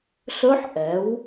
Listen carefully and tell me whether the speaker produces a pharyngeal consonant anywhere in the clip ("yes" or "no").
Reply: yes